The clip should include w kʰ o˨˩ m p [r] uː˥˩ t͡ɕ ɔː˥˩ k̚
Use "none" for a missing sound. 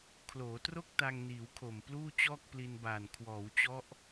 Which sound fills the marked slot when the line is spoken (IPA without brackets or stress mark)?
l